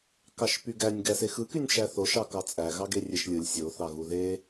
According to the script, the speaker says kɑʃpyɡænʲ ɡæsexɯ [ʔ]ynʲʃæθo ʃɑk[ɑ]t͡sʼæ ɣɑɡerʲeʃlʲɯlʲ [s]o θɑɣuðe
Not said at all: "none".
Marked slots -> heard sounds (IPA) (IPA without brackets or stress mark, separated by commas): k, ɑ, sʲ